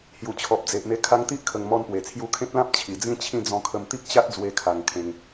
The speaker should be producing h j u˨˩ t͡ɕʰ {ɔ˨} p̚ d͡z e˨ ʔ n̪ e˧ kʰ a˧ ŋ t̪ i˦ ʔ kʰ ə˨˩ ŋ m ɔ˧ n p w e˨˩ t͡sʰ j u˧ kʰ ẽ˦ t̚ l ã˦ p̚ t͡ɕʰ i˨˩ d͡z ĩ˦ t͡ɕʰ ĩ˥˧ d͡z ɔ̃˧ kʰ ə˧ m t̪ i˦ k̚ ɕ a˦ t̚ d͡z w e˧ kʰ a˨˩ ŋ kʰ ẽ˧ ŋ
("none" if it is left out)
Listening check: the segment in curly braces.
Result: ɔ˨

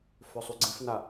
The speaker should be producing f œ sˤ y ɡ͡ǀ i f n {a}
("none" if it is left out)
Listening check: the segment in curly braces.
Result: a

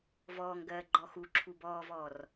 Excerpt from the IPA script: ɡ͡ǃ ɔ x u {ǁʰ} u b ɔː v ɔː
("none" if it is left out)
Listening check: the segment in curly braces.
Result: ǁʰ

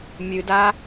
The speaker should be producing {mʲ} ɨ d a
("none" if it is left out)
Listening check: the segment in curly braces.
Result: mʲ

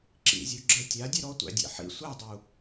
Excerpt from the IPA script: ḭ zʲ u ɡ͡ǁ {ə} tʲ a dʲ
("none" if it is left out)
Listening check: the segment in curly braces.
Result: ə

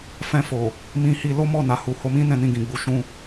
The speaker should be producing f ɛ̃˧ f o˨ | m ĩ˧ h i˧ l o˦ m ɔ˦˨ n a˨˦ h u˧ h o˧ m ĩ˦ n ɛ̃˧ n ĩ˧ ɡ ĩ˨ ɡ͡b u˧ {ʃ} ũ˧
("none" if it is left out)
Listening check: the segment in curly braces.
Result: ʃ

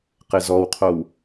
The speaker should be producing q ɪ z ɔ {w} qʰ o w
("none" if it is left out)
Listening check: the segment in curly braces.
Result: w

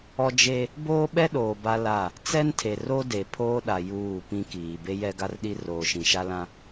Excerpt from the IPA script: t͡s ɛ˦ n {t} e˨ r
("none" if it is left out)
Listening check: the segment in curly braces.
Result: tʰ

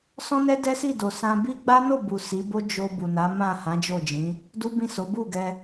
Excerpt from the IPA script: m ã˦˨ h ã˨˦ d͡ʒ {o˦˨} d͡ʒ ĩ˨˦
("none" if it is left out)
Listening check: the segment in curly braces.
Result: o˦˨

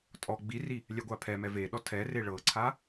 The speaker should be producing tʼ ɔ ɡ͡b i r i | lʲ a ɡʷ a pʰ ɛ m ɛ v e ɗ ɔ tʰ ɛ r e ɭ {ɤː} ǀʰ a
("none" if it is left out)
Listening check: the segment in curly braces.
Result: ɤ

